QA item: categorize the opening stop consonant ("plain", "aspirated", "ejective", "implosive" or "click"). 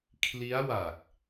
aspirated